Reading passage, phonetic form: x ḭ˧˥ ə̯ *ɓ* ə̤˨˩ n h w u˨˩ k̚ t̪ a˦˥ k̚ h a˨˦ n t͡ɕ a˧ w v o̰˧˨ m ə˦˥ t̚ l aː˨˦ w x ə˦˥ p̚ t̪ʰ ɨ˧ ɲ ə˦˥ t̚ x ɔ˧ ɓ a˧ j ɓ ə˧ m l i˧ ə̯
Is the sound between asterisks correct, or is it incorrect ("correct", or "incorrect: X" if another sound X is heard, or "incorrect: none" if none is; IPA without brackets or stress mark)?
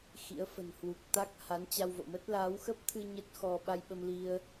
incorrect: f